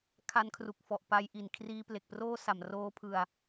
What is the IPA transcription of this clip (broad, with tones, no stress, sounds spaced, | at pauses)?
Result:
kʰ a˧ n kʰ r u˨˩ k̚ f ɔ˨˩ ʔ p a˧ j ʔ i˨˩ n kʰ r iː˦˥ p l e˨˩ k̚ p r oː˥˩ s a˨˩ m r oː˦˥ pʰ ɯ˧ a̯